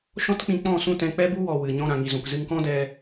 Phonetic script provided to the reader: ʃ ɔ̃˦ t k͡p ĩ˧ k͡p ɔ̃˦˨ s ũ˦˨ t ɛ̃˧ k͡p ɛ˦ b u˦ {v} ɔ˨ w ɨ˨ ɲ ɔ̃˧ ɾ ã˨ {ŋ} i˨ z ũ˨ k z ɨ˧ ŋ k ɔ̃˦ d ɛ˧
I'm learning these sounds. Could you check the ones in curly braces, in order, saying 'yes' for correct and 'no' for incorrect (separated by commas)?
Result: no, yes